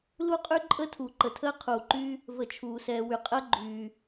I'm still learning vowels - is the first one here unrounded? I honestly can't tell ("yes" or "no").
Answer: no